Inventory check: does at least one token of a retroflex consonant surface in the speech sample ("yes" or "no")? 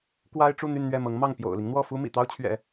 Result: yes